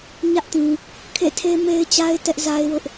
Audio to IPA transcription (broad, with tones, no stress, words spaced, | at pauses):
ɲä˦ʔtĩ˨ | kʰḛ˦˨tʰe˦me˦ɪ̯t͡ɕa˦ɪ̯ tɛ˦ʔza˦ɪ̯wʊ˦ʔ